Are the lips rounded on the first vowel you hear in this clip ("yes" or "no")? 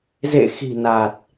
no